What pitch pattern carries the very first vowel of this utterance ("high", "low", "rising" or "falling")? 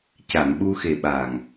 low